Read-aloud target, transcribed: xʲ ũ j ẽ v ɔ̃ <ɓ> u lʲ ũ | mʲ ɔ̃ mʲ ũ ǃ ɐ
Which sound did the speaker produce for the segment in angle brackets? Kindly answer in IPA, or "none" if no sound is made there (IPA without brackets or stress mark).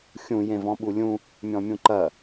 ɓ